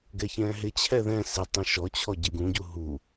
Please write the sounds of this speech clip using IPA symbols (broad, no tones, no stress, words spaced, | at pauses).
ɡɛçɛ̃ɦɪt͡ɕʰɛ ðɛ̃ sɪtˤũ ʃɔt͡ɕʰɔ ɟɪɡũɟu ɦu